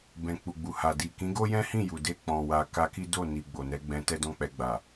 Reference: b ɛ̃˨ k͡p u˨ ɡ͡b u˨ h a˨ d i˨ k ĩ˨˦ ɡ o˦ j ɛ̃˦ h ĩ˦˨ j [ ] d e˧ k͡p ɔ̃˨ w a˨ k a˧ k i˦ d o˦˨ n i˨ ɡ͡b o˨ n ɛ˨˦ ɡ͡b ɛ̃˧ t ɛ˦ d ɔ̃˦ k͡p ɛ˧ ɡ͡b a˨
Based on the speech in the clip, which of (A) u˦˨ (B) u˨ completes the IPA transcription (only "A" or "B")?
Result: B